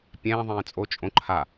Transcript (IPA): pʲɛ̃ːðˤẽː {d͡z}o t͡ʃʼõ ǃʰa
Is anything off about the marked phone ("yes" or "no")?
yes